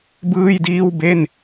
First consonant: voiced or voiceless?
voiced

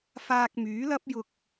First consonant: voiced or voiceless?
voiceless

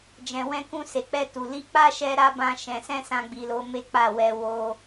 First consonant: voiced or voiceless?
voiced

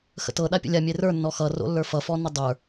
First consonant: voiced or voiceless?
voiceless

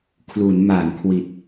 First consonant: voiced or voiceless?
voiceless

